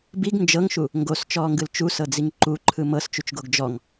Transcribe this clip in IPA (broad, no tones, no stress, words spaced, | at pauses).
biɡ nd͡ʒɤŋʃu | ŋɡost͡ʃɔːŋɡɯl t͡ʃusɤd͡ziŋ ǃuǃʰɯ mɤst͡ʃut͡ʃɡoɡ d͡ʒɔŋ